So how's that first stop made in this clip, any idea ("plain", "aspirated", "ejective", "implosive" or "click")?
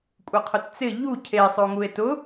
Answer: ejective